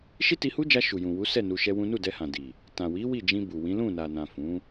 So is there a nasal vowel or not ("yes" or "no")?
yes